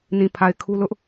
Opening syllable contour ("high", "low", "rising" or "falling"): low